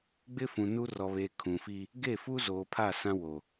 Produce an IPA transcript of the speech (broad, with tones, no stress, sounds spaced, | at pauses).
ɡ͡b ɪ˦ f ũ˨ n u˦ r ɔ˨ β eː˨ kʰ ũ˨ f iː˦ | ɡ e˦˨ f u˦ z oː˨ pʰ a˦˨ s ã˦ w o˨